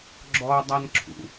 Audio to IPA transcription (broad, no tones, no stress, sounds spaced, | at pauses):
ɡ͡ǁ ɔ dˤ a n ǁʰ ṵ